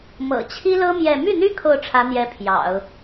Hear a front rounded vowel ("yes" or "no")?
yes